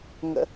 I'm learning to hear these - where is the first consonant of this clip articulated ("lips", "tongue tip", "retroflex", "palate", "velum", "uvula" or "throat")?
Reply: velum